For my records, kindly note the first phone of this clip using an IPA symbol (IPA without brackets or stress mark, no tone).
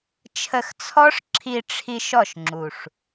t͡ʃʰ